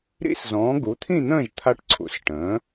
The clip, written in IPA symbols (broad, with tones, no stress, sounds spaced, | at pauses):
ɾ ḭ˦˥ s z ɔ̃ː˩˥ ɡ u˩˥ t̪ʰ ĩ˥˨ n̪ ə̃ː˥˨ ʒ t̪ʰ a˦˥ ʈ ǀʰ ṵ˩˥ s ʈ ə̃ː˩˥